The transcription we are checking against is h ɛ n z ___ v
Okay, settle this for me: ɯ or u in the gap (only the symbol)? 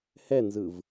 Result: ɯ